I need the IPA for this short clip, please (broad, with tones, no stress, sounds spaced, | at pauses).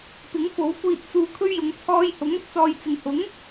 p ɪ˨˥ ŋ f o˨˥ w kʷ iː˨ t̚ t͡s uː˨ kʰ ɵ˧ ɥ j ʊ˨˧ ŋ t͡sʰ ɔː˧ j h ʊ˨˥ ŋ ɐ˧ t̚ t͡s ɔː˨ j t͡s ɪ˨ ŋ h ʊ˨˥ ŋ